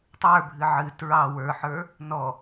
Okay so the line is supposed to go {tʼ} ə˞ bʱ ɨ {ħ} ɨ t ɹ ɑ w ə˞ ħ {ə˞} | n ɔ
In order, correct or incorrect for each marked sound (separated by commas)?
incorrect, incorrect, correct